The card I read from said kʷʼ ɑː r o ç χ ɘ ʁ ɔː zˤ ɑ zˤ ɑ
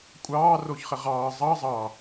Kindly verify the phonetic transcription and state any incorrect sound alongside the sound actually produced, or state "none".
ɔː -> ɑː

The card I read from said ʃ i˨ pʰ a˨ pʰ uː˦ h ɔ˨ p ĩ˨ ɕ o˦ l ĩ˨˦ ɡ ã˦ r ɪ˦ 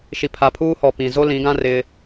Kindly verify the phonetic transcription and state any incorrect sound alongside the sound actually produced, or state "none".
ɕ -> z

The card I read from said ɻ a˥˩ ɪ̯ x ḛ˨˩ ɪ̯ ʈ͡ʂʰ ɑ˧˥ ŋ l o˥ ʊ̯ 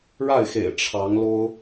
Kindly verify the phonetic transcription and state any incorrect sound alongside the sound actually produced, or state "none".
none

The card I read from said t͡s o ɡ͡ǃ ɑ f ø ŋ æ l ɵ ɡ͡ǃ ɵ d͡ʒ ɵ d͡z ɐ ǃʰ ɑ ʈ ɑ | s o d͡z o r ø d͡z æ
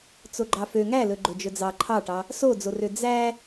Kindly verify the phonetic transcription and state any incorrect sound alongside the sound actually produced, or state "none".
ɐ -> ɑ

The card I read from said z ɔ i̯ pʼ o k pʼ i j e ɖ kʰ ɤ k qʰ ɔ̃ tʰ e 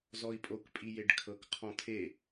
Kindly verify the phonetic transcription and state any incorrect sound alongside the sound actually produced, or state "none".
none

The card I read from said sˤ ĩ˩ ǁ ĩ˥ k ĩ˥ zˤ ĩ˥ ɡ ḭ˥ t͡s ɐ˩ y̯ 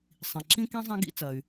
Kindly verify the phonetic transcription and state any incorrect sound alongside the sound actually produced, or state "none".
none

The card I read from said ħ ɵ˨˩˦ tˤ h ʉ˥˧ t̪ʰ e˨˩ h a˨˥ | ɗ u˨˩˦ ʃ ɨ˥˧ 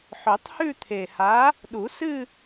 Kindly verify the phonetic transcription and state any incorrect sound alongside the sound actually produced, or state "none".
ʃ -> s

